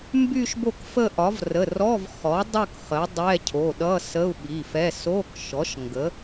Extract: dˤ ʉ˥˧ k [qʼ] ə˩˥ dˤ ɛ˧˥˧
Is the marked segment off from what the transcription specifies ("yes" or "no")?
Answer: yes